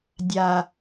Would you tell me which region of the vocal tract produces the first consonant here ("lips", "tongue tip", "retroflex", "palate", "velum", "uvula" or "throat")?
tongue tip